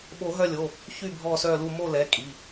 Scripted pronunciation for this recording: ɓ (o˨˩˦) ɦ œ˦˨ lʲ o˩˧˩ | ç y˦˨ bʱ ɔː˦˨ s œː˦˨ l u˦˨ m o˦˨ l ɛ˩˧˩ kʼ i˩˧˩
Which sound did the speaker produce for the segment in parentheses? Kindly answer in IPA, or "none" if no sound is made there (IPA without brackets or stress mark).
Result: o˨˩˦